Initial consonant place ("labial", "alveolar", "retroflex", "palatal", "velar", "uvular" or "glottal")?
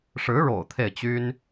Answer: retroflex